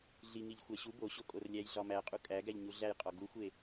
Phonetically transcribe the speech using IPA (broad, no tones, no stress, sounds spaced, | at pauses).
ɮ i ŋ i ʎ xʷ æ ɕ u b o ɕ o kʼ o r lʲ æ j ɮ ɒ m æ qʼ u kʼ æ ɡ æ ʎ ɲ u ɮ æ j qʼ ɒ ɡ u xʷ e